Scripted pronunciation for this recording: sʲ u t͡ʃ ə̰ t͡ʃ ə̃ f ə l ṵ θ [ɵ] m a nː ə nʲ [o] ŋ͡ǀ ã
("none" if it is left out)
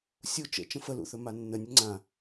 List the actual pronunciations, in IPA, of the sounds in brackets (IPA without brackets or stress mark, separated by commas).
ɵ, ɵ